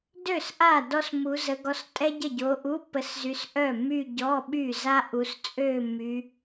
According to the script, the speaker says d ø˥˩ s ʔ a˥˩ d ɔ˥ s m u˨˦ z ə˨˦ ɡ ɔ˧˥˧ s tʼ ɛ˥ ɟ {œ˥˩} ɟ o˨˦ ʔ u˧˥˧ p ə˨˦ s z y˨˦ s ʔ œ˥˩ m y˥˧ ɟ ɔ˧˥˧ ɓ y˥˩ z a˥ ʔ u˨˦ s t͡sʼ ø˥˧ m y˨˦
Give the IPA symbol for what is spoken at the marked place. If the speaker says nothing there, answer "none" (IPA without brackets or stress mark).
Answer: ə˥˩